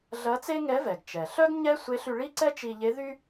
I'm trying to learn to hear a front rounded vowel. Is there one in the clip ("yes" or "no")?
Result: yes